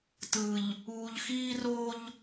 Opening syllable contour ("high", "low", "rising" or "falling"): low